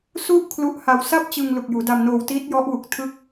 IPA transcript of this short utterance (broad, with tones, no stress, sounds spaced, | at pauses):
s u˥˩ ʔ kʰ l u˦˥ ʔ h a˧ w s a˥˩ p̚ t͡ɕ ɯ˧ ŋ l u˨˩ k̚ j uː˩˦ d a˧ m n oː˧ w t iː˦˥ t̚ j ɔ˦˥ ʔ w u˨˩ k̚ tʰ ɯ˦˥ k̚